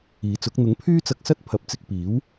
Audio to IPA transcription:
iː˨˥ t͡s ʊ˨˥ k̚ n̪ ʊ˨˥ ŋ pʰ yː˥ t͡s ɐ˧ k̚ s ɐ˥ t̚ pʰ ɐ˨ p̚ t͡s ɪ˧ k̚ p iː˨˥ w

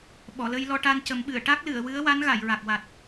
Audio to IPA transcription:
ɓ ɔ˨˩˨ l ə˧ j l ɔ˧ ʈ a˧ n c ə˨˩˦ m ɓ ɨ˨˩˨ ə̯ ʈ a˦˥ k̚ l ɨ˨˩˨ ə̯ w ɨ˧˥ ə̯ w a˧˥ n ɣ a˨˩˨ j ɹ a˨˩ k̚ w a˨˩ t̚

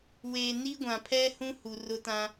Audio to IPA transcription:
w eː˨ n i˦ ɡʷ ã˨ pʰ ɛ˦ h ũ˦ h u˨ r ʊ˦ t ã˦

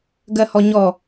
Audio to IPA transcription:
ɡ ɜ h ɔ ɲ ɔ

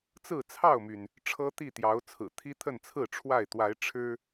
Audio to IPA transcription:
t͡s ɹ̩˥˨ t͡sʰ ɑ˥˨ ʊ̯ m y˩ n | ʈ͡ʂʰ ɤ˦ t̪ i˥˨ t̪ j ɑ˨˦ ʊ̯ t͡sʰ ɹ̩˨˩ t̪ʰ i˦ t̪ʰ ə˥˨ n t͡sʰ ɹ̩˥˨ ʈ͡ʂʰ w a˥˨ ɪ̯ t̪ w a˨˦ ɪ̯ ʈ͡ʂʰ ɻ̩˦

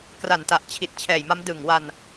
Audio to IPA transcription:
k r a˨˩ n t a˨˩ ʔ t͡ɕʰ i˨˩ t̚ t͡ɕʰ ɛː˨˩ j m a˦˥ m d ɯ˨˩ ŋ w a˧ n

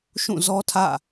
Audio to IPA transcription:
ʃ ũ˦˨ z ɔ˦ tʰ ä̰˦˨

